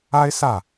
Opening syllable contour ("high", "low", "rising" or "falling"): high